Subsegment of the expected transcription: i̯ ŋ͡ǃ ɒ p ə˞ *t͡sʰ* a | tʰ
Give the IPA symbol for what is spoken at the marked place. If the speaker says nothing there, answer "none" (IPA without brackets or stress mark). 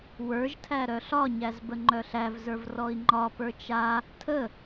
t͡ʃ